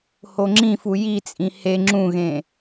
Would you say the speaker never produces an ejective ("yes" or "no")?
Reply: no